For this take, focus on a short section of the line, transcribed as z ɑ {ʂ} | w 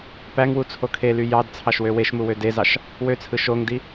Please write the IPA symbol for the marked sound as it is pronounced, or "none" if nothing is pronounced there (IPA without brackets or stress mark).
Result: ʃ